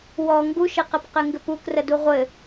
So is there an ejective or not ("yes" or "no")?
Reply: no